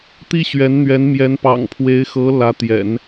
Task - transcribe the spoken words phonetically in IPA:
t̪ i˥ ɕ ɥ ɛ˧˥ n n̪ ɥ ɛ˧˥ n m j ɛ˧˥ n p ɑ̰˨˩ ŋ pʰ w e˧˥ ɪ̯ x ɤ˧˥ l ä˧˥ t̪ j ɛ̰˨˩˦ n

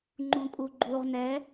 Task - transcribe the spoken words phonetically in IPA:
ŋ͡ǃ ũ kʼ u ɡ͡ǃ u ʁ n ɛ

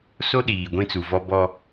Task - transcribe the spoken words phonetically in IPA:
s o˦ ɗ iː˨ ɡʷ ĩ˦ t͡s u˨ v ɔ˦ b ɔ˦

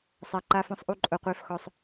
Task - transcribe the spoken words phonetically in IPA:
sˤ a˧ ǃ a˧ f ɔ̃˧ sˤ ʔ u˧ ǃʼ ʊ˧ qʷ e˦ f x ɔ˧ sˤ

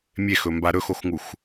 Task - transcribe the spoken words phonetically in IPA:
mʲ e x ɵ m b a ɾ ɵ x o x ŋ u x

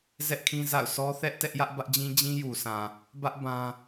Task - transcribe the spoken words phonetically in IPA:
z ɛ˦ ʔ kʰ ĩ˦ z a̰˦˨ ʊ̯ s ɔ˦ θ ɛ˦ ʔ t ɛ˦ ʔ j ä˦ ʔ b ä˦ ʔ d͡ʑ ĩ˦ d͡ʑ ĩ˦ j u˨ s ã˨ | b ä˦ ʔ b ã˦

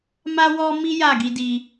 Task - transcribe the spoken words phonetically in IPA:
m a˦ w ɔ˦ m i˦ j a˦˨ ɡ i˧ d i˧

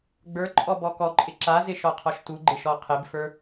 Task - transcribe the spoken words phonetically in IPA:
ɡ͡b ə˞ ǃʼ ɔ b ɔ k ɔ ǃʼ ɪ ǁ a z ɪ ʃ ɔ qʰ ɔ ʃ t u ɡ͡ǃ ɪ ʃ ɔ qʰ ɪ b f ə˞

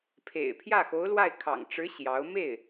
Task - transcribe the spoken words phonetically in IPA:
pʰ ḛ˨˩ ɪ̯ pʰ j ä˥˩ x o˧˥ ʊ̯ l w a˥˩ ɪ̯ kʰ ɑ̰˨˩ ŋ ʈ͡ʂ ɻ̩˧˥ ɕ j ɑ˧˥ ʊ̯ m e˥˩ ɪ̯

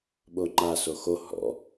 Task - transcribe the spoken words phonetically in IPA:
ɓ o ŋ͡ǃ a s o x o h ɔ̰

